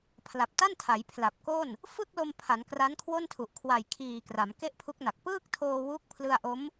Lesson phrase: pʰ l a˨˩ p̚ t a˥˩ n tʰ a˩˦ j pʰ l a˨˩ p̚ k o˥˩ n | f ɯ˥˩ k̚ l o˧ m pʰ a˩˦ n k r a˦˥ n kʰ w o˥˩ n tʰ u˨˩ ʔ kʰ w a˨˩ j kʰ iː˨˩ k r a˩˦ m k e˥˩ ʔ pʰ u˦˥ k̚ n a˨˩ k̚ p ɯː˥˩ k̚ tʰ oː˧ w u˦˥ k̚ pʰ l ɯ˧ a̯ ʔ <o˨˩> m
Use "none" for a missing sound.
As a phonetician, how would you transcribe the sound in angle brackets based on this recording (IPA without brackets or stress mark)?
o˦˥